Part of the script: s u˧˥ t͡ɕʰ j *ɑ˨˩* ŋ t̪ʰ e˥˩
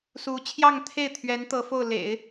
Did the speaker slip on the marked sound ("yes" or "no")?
yes